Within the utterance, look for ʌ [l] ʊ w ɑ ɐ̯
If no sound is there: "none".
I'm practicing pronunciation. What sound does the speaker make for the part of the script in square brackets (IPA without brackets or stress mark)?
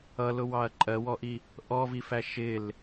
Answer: l